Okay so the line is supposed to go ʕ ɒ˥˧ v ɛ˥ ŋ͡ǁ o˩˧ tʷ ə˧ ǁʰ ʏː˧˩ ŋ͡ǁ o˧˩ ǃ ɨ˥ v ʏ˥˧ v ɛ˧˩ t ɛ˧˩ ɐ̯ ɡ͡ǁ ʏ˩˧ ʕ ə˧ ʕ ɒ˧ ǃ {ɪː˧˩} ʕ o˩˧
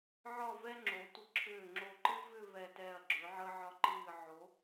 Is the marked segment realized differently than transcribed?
yes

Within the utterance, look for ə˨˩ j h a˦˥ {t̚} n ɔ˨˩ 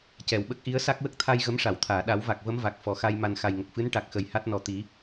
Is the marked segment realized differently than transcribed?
no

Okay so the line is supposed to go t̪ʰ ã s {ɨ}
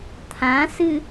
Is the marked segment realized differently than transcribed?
no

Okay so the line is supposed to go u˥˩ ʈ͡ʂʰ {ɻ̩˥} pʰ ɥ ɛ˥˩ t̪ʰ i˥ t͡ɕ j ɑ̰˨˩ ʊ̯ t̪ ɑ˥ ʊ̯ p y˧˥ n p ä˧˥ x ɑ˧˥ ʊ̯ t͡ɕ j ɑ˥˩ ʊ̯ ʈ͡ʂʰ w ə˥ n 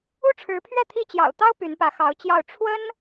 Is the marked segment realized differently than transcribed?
yes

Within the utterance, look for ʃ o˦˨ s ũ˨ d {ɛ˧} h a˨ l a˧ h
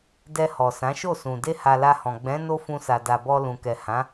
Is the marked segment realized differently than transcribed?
yes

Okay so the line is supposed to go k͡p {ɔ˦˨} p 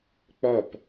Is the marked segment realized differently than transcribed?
no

